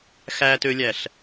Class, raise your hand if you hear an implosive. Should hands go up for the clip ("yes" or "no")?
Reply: no